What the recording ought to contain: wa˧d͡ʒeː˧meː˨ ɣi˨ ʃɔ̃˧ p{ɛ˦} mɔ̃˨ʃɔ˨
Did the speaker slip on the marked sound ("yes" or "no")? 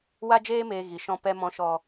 yes